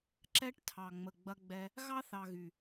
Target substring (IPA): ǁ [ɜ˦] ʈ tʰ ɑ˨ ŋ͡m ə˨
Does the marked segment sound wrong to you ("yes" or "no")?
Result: yes